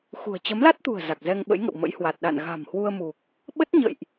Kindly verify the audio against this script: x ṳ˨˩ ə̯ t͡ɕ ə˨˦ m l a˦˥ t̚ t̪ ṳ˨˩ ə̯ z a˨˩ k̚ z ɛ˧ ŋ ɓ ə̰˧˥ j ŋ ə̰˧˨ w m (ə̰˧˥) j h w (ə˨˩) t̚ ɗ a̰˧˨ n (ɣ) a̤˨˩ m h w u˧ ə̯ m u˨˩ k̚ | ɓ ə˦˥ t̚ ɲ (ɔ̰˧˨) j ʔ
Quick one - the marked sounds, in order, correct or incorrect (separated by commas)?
correct, incorrect, correct, incorrect